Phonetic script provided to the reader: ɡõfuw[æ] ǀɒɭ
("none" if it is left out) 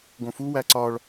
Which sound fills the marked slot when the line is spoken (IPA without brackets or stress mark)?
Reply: æ